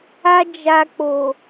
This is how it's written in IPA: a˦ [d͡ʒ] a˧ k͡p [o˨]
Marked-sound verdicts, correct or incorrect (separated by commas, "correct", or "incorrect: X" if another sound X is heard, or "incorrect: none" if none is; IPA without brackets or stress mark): correct, correct